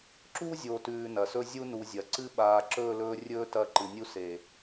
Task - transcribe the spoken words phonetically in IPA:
ǁu˦zʲo˨tʉː˨ nɐ˨sɵ˦zʲu˦ nu˨zʲɐ˨ǀɨ˦ ɓaː˨ǁɵː˦˨lɵː˦rʲɵː˦ tɐ˦˨ǃɨ˨nʲu˦ seː˨

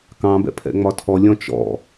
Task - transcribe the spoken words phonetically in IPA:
kɑ̃bɛ̰ pʰɛ̰ŋ͡mɒtʰɔ lʲɔ̃t͡ʃɔ̰

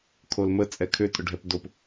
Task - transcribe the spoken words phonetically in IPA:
kʰolmə t͡sʼɛkʰʏ tʼʊɖʱɛpdop

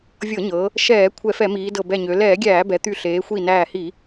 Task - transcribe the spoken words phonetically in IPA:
vʲɤ˧˩˧ɲɤ˩˧ | ʃɛː˧˩˧ kʷʰɛ˧˩˧fɛ˧˩˧miː˩˧dɤ˧˩ bɛ˧˩ɲø˩˧ lɛː˧˩˧ɡʲæː˧˩˧ bɛ˩˧t̪y˧˩ɬeː˩˧ xʷi˧˩næː˧˩hi˧˩˧

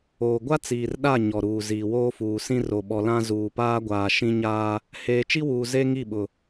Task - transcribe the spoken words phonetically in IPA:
oː˨ɡʷa˦t͡siː˨r ɗa˦˨ ɲɔ˨ɾuː˨ ziː˨woː˦fuː˨sĩ˦ ro˨ ɓɔ˨lã˦ zuː˨paː˦ɡʷaː˨ ʃĩ˦ɲaː˦ | heː˨t͡ʃi˦wuː˨ ze˦ ŋi˦˨ɓʊ˨

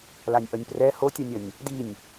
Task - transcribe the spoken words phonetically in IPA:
lanʲʔʌnʲprɛ hotʲanʲʌnʲ | dinʲ

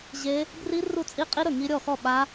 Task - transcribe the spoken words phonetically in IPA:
ʑe˦˥ | bri˦˥ru˥˩ t͡sʼi˦˥qʼi˦˥ ɾɵ˥˩ŋi˦˥ ɾʲɔ˥˩xɔ˥˩ ɓa˦˥

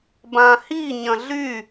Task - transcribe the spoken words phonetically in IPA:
bãhi ɲɐ̃ɮy

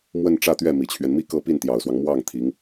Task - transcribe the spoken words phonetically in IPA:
mwə˥˧n ʈ͡ʂä˥˧t̪ɥɛ˥˩ mi˨˩t͡ɕʰɥɛ˦n mi˥˧kɤ˥˧ pi˥˩nt̪jɑ˨˩ʊ̯swɑ˦ŋ mwɑ˥˩ŋ t̪ʰi˧˥ŋ

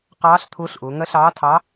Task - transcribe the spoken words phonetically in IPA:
qɑː˧˥ɬ t̪ʰʊː˧˥ɬʔʊː˩˧ ŋɜ˧˥ɬɑː˧˥tʰɑ˧˥

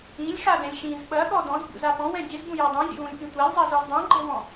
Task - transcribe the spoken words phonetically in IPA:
ĩlʲxadɛ̃lʲ xĩz ɓɐɠɔ dɔ̃zbṵza pɔ̃wɛ̃ dʲɛzbũja dˤũzʲṵwũlʲpĩ tʷalʲzˤazɔz dˤũɡ͡ǃɛwɔ̃

